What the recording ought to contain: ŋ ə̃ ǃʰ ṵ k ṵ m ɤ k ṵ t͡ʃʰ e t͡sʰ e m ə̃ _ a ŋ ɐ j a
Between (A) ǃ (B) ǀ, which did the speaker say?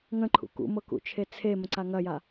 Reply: B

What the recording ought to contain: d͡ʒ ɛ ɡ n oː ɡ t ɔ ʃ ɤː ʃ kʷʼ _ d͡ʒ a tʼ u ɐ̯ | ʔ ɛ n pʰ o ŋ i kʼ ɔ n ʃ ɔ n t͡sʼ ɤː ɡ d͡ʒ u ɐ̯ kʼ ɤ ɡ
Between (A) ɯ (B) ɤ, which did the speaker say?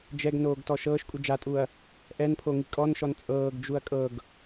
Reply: A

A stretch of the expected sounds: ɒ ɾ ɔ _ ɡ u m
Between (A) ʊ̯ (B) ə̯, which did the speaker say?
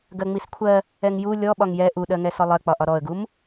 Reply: B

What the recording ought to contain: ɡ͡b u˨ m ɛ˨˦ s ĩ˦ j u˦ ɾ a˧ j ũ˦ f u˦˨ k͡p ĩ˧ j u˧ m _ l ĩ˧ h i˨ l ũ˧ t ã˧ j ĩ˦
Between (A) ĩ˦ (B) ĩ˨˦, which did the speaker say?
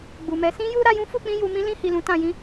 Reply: A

